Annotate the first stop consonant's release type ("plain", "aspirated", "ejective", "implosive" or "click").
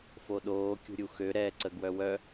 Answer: implosive